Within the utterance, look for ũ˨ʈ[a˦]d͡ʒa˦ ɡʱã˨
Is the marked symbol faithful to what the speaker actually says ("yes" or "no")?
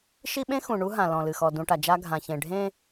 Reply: no